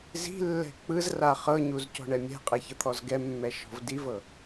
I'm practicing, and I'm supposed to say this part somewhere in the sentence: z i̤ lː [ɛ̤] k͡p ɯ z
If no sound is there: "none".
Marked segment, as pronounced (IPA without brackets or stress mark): ɛ̤